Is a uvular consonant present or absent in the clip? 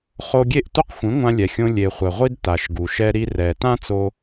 present